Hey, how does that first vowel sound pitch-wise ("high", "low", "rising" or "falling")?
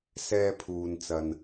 high